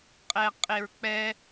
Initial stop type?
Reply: ejective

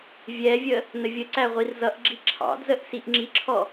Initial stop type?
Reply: click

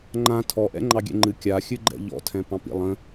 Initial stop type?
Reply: click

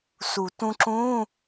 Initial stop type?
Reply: plain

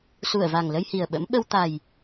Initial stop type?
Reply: implosive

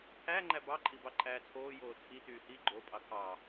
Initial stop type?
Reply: aspirated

